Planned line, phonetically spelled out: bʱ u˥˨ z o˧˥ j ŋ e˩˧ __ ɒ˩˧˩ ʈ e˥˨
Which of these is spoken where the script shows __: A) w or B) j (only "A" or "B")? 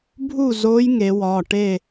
A